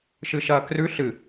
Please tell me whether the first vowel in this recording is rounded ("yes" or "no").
no